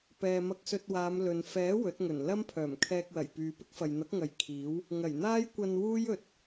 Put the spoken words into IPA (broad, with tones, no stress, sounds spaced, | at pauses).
p ɛː˧ m ɐ˧ k̚ s ɵ˧ t̚ w aː˨˧ m l ɵ˨ n f ɛː˨˥ w ɵ˨˥ t̚ ŋ ɵ˨˩ n l ɐ˥ m pʰ œː˨˩ m kʰ ɛː˧ k̚ w ɐ˨˩ j p yː˨ p ɪ˥ k̚ f ɐ˨ j n̪ ɐ˨˥ k̚ ŋ ɐ˨˧ j kʰ iː˨˥ w | ŋ ɐ˨˩ j n̪ aː˥ j kʷ ɐ˧ n w uː˥ j ɵ˨ t̚